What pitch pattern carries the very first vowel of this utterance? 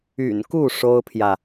low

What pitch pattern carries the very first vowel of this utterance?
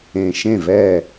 low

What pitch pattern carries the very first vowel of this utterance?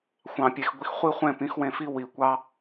low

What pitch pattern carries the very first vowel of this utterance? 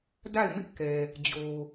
falling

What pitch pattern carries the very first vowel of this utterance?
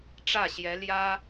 falling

